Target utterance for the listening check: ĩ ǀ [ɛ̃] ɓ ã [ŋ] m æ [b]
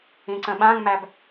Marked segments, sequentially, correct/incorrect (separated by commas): incorrect, correct, correct